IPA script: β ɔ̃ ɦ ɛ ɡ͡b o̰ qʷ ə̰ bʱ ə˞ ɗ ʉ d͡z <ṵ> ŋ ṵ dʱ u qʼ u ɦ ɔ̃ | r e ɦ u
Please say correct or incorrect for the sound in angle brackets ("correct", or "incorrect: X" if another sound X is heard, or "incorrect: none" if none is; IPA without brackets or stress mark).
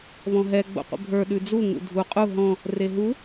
incorrect: u